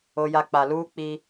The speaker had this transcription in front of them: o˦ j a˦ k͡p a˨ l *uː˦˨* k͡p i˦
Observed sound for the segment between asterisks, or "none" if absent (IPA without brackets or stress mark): uː˦